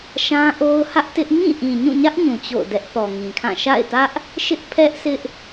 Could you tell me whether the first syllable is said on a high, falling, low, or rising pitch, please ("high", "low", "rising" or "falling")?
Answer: high